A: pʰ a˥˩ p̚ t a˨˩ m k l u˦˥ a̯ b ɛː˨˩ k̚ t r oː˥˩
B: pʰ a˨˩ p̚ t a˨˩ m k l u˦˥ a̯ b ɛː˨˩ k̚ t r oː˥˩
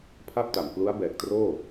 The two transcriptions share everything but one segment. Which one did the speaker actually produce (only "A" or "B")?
A